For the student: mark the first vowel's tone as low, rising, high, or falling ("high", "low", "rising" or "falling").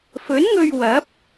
rising